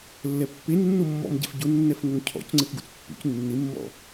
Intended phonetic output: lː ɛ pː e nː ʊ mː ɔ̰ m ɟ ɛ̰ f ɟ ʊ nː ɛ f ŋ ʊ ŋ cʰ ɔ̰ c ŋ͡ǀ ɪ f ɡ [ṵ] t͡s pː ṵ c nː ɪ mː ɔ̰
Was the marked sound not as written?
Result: no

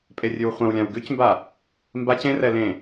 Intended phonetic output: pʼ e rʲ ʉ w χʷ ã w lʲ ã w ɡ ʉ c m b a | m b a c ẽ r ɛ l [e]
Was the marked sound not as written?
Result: yes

